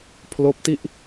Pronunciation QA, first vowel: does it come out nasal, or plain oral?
oral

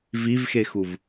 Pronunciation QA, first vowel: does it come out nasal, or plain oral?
oral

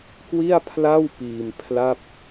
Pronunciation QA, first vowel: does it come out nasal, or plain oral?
oral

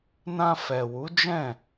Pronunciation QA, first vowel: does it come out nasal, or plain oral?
nasal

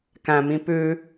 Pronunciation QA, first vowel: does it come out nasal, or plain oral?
nasal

